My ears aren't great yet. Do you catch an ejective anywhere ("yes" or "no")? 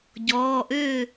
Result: no